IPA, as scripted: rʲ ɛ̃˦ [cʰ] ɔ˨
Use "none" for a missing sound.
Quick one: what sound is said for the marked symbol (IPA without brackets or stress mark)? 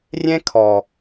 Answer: kʰ